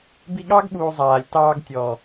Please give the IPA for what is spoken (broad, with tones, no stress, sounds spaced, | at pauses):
b i˧ ɠ ɑ˦ ɡ ɓ uː˨ zˤ aː˨ lʲ t ɑː˧ ɡ tʲ ɔː˨